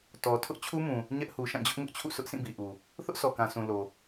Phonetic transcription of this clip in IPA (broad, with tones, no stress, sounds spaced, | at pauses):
t ɔ˨ tʰ ʊ˦ ʔ t͡ɕʰ u˦ m ũ˨ | ɲ ɛ˦ ʔ h u˨ ʃ ã˦˨ d͡ʑ ʊ˦ ʔ ŋ ʊ˦ ʔ t͡ɕʰ ṵ˦˨ s ʊ˦ ʔ sʰ ĩ˦˨ b i˨ ʔ u˨ | θ ʊ˦ ʔ s ɔ˨ k ã˨ sʰ ũ˨ l o˨